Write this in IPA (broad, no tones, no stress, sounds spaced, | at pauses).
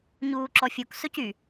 ɲ uː ǁ ɔ fʲ u k s ɵ c y